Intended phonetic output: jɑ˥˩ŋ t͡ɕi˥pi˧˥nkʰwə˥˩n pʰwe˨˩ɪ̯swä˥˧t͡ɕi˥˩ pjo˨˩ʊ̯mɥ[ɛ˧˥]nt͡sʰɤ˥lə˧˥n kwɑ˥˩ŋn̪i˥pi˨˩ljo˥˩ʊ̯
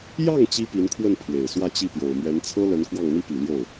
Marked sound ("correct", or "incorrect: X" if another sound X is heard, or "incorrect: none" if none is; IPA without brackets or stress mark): correct